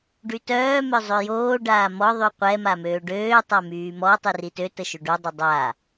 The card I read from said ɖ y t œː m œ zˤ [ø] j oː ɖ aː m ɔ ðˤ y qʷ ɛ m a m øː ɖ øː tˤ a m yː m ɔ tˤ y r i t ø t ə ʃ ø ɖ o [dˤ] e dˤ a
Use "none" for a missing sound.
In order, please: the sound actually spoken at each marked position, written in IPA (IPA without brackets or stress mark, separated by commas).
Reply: ø, dˤ